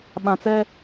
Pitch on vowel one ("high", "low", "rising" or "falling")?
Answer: low